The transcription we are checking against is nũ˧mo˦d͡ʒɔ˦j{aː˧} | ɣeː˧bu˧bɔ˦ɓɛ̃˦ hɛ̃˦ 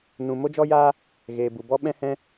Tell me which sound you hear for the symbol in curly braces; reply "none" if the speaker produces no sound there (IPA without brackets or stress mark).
aː˦